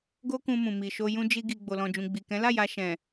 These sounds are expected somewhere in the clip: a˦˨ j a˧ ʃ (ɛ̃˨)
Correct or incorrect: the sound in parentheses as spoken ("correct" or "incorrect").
correct